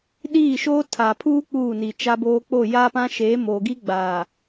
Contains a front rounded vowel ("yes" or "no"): no